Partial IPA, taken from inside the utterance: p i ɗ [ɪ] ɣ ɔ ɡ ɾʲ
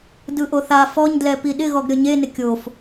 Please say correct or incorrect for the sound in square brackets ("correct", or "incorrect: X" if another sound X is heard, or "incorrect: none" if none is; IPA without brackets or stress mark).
correct